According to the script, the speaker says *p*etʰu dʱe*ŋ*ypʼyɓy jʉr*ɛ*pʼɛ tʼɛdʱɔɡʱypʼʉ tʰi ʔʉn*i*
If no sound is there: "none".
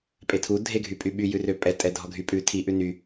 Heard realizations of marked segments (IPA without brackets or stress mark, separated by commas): pʼ, ɡʱ, ø, y